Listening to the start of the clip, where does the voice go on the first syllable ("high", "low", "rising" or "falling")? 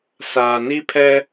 low